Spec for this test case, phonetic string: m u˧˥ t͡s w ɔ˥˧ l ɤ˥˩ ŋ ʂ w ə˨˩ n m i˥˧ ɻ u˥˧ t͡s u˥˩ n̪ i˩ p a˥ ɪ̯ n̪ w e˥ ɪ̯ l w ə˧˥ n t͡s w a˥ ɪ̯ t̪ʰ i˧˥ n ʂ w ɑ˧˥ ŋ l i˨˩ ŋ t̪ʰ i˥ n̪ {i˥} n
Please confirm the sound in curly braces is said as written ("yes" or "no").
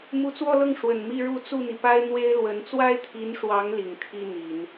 no